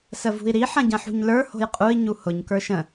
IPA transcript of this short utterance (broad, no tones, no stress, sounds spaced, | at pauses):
s ə v ṳ i̯ ɾ i ħ ɐ̃ ɟ ɐ̃ ħ ṳ ɲ l ə˞ h o̤ j qʼ u i̯ ɲ u h ʊ ɲ k ə˞ ʃ ə̃